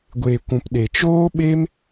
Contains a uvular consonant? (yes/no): no